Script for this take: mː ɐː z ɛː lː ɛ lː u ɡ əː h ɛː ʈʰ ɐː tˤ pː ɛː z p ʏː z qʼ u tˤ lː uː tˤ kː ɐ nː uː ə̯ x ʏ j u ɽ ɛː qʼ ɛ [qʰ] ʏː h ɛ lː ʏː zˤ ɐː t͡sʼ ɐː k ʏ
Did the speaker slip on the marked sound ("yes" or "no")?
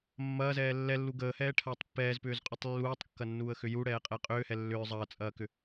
yes